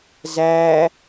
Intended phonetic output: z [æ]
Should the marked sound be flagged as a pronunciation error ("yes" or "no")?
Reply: no